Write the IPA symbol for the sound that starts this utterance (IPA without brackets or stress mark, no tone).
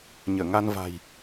ɲ